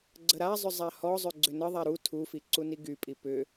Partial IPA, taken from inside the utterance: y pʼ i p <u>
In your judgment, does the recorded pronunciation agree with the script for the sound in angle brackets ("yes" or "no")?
no